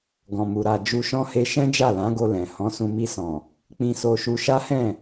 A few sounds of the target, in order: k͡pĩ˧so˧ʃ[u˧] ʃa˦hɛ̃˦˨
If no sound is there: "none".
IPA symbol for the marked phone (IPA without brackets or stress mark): u˧